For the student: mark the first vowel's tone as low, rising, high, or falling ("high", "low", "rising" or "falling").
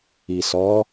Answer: low